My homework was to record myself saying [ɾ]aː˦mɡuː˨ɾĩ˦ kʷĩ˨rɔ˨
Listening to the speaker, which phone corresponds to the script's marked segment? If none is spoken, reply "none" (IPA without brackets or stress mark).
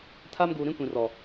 tʰ